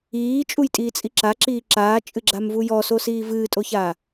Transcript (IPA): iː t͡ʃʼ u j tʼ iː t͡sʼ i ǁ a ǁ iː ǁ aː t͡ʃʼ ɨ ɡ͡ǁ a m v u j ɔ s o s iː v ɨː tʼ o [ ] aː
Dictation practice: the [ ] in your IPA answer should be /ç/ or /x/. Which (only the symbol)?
ç